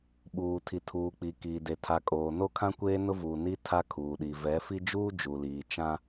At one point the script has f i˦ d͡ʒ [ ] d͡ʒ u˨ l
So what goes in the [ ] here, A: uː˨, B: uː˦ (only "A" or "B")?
B